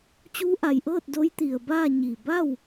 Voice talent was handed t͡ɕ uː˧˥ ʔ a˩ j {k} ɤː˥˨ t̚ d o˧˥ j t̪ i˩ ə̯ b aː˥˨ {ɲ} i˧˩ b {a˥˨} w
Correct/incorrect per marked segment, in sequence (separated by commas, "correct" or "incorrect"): incorrect, correct, correct